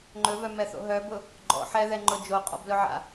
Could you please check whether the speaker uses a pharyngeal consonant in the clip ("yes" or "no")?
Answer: yes